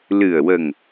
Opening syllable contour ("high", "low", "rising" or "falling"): low